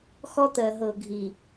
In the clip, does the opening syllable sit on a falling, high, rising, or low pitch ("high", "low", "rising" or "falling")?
high